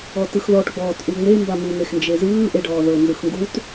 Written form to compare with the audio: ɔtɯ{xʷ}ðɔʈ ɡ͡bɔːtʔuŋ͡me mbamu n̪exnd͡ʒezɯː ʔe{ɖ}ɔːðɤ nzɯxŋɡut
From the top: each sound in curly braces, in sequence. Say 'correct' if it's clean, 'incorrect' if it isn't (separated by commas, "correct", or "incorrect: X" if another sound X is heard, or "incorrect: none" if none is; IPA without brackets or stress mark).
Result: incorrect: x, correct